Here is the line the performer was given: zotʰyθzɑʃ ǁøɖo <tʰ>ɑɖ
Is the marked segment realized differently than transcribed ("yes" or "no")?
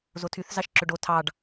no